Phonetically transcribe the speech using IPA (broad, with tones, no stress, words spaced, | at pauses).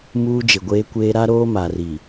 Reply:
muː˦d͡ʒɪ˨ɡʷeː˦kʷeː˦ ɾa˦ ɾoː˦ma˨ri˨